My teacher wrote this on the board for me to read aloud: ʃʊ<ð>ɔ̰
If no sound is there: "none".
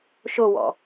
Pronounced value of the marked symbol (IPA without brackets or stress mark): w